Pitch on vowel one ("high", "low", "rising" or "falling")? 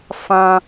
high